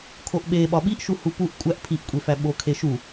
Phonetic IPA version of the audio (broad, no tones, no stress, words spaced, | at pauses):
kʰoʔɓe ɓɒɓiʔʃu hupuʔ kʷʼæʔ pʰiʔkʷʼefæ ɓokʰeʃu